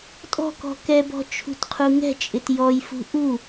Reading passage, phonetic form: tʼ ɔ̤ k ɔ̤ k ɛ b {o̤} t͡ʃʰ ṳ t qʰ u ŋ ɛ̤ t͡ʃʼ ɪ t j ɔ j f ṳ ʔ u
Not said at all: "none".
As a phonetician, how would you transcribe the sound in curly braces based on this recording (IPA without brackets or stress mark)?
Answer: ɔ̤